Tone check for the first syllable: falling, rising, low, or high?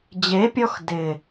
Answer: rising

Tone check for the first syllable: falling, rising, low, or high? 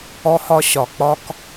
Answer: high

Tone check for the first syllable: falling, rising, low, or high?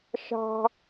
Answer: high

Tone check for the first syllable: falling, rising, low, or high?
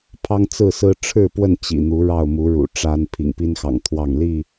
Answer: high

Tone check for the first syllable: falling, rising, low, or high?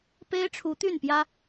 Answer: high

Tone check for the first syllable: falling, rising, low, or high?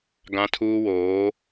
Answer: high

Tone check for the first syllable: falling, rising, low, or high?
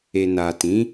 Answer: low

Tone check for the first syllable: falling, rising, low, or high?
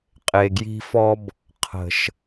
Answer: low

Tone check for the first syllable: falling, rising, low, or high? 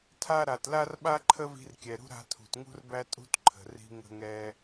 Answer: high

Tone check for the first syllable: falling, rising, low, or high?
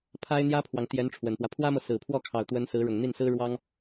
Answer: high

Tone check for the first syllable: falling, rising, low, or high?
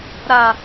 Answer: low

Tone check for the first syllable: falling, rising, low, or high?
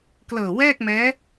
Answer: low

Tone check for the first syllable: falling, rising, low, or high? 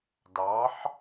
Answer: rising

